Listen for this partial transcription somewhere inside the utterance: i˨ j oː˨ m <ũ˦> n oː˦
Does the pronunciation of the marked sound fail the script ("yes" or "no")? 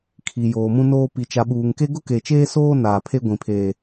no